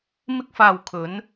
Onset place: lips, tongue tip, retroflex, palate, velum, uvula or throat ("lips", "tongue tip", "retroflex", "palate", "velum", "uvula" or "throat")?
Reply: lips